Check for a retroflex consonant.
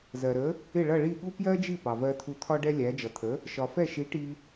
present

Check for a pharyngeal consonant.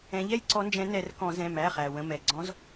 absent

